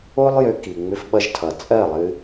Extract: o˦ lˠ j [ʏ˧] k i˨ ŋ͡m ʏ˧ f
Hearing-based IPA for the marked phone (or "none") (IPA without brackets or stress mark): ʏ˧